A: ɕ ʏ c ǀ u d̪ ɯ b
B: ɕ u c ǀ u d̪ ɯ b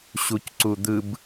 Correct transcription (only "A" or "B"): B